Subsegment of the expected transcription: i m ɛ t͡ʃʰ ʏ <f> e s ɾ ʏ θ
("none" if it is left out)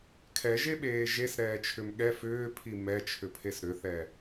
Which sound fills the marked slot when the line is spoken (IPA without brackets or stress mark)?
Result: pʰ